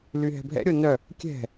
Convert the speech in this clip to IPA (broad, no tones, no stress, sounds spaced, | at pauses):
l y ɦ ɛ̤ bʱ ɛ̰ ɾʲ o n œ | kʲ ɛ̤